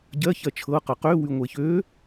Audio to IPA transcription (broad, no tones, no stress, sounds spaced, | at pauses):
ɟ ɜ ç ɜ t͡ʃʰ ɤ q ɤ q ø w y ŋʷ e ç ø